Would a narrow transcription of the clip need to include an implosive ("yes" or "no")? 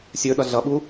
yes